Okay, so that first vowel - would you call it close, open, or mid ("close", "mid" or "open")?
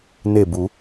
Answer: mid